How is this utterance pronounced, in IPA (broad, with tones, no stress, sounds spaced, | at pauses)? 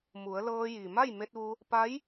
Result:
m u˩˧ ə̯ l ɤː˧ j i˩ m a˥˨ j m e˧ t̚ ʋ u˧ | p a˧˥ j